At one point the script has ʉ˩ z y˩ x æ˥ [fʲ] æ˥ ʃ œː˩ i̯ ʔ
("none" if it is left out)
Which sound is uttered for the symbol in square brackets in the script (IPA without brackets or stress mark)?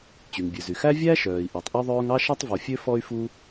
vʲ